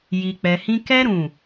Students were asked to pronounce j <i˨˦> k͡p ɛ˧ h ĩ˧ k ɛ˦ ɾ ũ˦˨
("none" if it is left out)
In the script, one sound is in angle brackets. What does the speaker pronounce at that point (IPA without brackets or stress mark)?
i˧